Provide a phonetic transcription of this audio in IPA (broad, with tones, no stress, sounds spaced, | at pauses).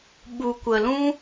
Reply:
ɓ u˨ kʷ ə˨ l ũ˦